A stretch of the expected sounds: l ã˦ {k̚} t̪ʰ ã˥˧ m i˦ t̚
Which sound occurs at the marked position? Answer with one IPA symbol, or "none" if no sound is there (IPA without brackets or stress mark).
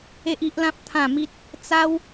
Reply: p̚